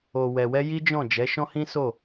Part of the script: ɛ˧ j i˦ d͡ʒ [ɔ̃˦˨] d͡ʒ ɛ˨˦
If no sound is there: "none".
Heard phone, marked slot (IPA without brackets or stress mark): ɔ̃˦˨